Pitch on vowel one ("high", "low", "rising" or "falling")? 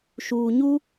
low